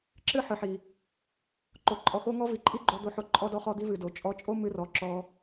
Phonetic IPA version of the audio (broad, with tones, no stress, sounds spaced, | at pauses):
ǁ ɨ˦ ħ ɨ˨ ħ i˨ | ǃ o˨ ǃʼ ɔ˨ x o˧ ŋ ɔ˧ v i˨ ǃʼ i˦ ɡ͡ǃ o˧ d̪ o˧ ħ o˧ ǃʼ ɔ˧ d ɔ˧ χ ɔ˧ d̪ i˧ v ɨ˨ d o˨ t͡ʃʼ ɔ˧ t͡ʃʼ o˦ m ɨ˧ r ɔ˨˦ ǁ ɔ˧